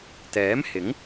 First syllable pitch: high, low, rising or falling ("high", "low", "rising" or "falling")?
rising